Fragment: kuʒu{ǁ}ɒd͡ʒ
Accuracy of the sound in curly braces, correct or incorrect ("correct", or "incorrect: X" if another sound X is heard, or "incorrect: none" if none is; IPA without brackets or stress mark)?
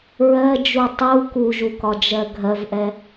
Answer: incorrect: k